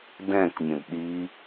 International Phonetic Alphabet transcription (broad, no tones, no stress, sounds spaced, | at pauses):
d ɛ̃ k mʲ ə̃ d ɗ i